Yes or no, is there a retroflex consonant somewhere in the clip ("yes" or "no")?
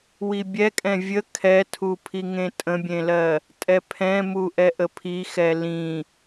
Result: no